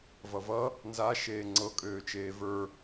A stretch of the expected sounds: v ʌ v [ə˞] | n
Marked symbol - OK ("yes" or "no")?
no